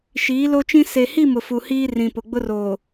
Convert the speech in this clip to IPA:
ʃ iː˨˦ l o˦ t͡ʃ ĩ˦ s e˨ h i˦˨ m ʊ˨ f u˨ h iː˦ r ĩ˨ p ʊ˨ ɡ͡b ʊ˦ r oː˨

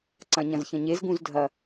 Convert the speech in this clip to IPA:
ǀ ɐ̃ ɲ ɐ̃ z ç ɐ̃ ɲ e z ɡ ũ z dʱ ɐ

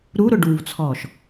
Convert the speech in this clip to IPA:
ɾ u ɾ ʊ ɖ u v t͡sʰ ɔː ʃ

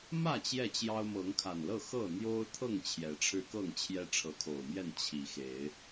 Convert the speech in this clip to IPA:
m ä˥˨ t͡ɕ j ɛ˥˨ t͡ɕ j ɑ˦ ʊ̯ m ɤ˨˦ ŋ kʰ a˨˩ n l ɤ˥˨ x ɤ˥˨ n̪ j o˦ ʊ̯ t̪ʰ ɤ˥˨ ŋ t͡ɕʰ j ɛ˨˦ ʈ͡ʂʰ ɻ̩˦ k ɤ˥˨ ŋ t͡ɕʰ j ɛ˦ ʈ͡ʂʰ ɤ˨˦ kʰ o˨˩ ʊ̯ m j ɛ˥˨ n t͡ɕʰ i˨˦ x e˨˦ ɪ̯

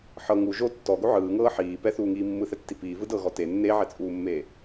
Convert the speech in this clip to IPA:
ħ ɤ ŋ u ʒ o tː ɔ ɡ o ʕ ɯː ŋ ɤː ħ iː p ɛ θ uː ŋ iː mː ɯ θ ɛ tː i p iː v ɯ d ɤ ɣ ɔ t e nː e ʕ ɛ t͡sʼ uː mː eː

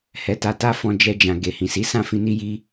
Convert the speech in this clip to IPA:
h ɛ˧ t a˧ t a˦ f ɔ̃˧ d͡ʒ ɛ˧ d͡ʒ ã˨ ɡ e˨ h ĩ˨ s i˨˦ s ã˦˨ f ĩ˧ n i˦ j i˦

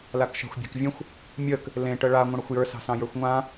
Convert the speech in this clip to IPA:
l a k ʃ a̤ xʷ bʲ a̤ k vʲ ə̃ xʷ | mʲ ə k | l ẽ ʈ ə ɭ a ŋʷ ə̃ ɽ ə xʷ j ə˞ s ɑ̤ s ɑ̃ j ə˞ xʷ ŋʷ ã

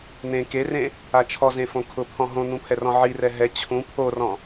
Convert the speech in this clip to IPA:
n̪ ẽ k e r ẽ | a t͡ʃʰ ɔ z ẽ f õ kʰ ʊ pʰ ɔ̃ ɦ õ n̪ ũ pʰ ɛ r ɔ̃ ʕ i r ɛ ɦ ɛ t͡ɕʰ ũ pʰ o r ɔ̃

